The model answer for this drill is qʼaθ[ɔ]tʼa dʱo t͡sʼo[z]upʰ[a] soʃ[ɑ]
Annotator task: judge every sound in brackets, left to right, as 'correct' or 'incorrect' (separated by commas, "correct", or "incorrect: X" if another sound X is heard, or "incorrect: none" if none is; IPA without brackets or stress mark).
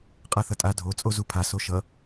incorrect: ʌ, correct, correct, incorrect: ʌ